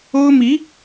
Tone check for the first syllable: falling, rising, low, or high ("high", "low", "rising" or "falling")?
high